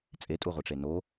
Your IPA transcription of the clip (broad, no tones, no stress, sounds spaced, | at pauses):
t͡sʼ e tʼ u ʁʷ i ʈ͡ʂ e n o